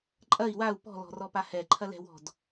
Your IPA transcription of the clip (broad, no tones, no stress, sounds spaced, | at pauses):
ǃʼ ɐ i̯ w a u̯ p ɔ̤ l ɔ̤ r ɔ p a h ɛ ǃʰ ɐ l ɛ̤ w ɔ̤ d